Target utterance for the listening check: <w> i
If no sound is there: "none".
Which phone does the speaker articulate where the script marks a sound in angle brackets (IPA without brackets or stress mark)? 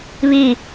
β